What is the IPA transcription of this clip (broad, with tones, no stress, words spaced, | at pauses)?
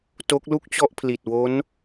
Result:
to˦˥k̚lu˥˩k̚t͡ɕɔ˥˩ʔpʰli˨˩t̚ wo˦˥n